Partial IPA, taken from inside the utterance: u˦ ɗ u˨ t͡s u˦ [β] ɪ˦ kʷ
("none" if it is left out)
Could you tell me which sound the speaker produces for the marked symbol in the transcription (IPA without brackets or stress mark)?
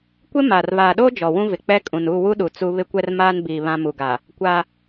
β